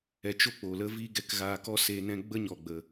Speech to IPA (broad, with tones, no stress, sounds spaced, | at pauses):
ɛ˧ t͡ʃ o˦ k͡p o˨ l ə˦ v iː˦ ɡ ɛ˧ k ɣ aː˧ k ɔ˦ s eː˧ n ɛ̃˦ ɡ͡b ə˦ ɲ ɔ˨ ɡ͡b ə˨